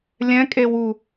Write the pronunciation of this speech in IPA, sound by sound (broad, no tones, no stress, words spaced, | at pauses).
lʲɛ̃kʼewu